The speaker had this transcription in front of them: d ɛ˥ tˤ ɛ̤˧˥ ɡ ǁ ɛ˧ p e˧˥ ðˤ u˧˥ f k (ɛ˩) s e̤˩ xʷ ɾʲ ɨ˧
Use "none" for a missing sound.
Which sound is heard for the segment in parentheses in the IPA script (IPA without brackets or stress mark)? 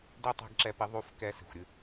ɛ˧